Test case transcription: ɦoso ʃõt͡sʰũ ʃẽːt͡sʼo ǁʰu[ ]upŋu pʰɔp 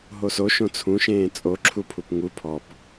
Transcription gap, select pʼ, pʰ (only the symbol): pʰ